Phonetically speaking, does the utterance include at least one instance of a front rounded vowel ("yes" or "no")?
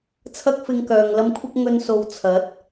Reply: yes